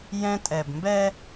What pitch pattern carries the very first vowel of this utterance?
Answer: high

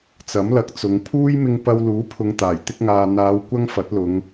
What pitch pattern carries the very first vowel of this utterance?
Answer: rising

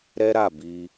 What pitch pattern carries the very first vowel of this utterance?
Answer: high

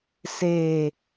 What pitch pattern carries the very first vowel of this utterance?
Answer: low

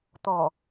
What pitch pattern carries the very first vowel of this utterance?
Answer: low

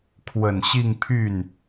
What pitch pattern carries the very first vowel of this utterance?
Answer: low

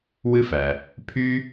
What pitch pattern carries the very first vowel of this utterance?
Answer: high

